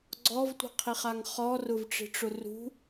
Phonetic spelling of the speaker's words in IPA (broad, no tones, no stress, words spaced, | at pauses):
ɡ͡ǀɔvtʷi̤qʰiχaŋ χɔrʊvʈ͡ʂi̤ʈ͡ʂʊ rṳ